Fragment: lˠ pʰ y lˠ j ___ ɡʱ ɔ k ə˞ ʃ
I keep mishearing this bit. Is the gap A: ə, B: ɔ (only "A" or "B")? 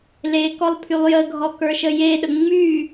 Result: A